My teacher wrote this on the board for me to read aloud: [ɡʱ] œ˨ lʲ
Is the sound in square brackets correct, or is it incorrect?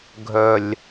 correct